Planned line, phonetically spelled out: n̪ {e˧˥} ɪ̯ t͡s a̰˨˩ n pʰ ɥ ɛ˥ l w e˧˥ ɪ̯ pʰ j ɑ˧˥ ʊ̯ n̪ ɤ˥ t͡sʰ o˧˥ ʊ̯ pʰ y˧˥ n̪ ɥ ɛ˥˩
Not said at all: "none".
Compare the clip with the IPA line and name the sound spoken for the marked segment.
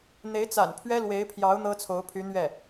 e˧˥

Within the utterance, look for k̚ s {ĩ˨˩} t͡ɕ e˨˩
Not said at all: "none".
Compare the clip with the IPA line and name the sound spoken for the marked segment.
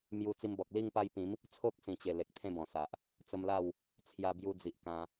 ĩ˨˩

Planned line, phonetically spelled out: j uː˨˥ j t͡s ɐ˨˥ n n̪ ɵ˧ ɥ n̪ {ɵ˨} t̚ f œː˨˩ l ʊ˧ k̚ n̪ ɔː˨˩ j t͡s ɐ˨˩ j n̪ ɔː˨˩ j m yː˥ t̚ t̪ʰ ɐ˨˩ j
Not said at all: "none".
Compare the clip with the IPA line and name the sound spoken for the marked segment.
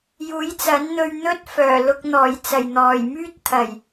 ɵ˥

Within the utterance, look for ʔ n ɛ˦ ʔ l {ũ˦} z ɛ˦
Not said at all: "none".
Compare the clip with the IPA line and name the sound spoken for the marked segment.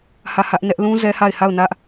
ũ˦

